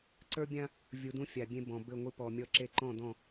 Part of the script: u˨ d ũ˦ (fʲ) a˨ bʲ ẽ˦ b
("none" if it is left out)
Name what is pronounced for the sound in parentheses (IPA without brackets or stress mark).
fʲ